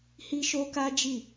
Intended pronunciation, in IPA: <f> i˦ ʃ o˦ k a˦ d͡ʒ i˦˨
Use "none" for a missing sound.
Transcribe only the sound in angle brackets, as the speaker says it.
h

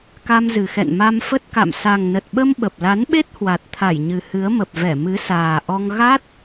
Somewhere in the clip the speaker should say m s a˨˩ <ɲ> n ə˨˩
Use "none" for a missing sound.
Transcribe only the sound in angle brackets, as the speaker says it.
ŋ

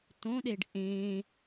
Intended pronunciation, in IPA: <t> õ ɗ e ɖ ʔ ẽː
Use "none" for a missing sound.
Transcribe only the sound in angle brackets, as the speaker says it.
t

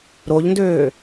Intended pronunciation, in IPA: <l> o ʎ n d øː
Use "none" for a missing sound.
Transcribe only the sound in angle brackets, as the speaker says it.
ɾ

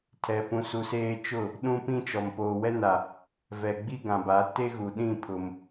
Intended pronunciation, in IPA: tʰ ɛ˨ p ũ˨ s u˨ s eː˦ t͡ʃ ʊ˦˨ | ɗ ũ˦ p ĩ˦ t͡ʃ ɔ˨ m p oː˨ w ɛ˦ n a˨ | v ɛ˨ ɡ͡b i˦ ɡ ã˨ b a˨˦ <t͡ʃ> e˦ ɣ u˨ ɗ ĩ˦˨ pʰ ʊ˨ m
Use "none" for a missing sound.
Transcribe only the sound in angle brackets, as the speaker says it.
t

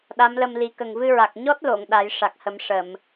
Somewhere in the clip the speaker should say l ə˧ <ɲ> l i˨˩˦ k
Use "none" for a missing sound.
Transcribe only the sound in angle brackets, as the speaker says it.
m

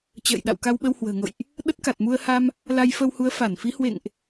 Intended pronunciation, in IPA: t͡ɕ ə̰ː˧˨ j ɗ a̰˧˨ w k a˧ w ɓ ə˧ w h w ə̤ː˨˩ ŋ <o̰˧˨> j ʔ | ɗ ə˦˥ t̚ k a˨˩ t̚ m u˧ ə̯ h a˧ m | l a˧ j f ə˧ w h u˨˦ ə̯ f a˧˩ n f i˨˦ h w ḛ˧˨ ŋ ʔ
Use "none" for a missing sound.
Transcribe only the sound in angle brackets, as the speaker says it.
o̰˧˨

